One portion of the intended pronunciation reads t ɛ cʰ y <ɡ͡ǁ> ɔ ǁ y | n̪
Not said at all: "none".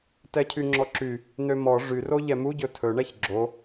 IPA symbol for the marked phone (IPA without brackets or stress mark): ŋ͡ǁ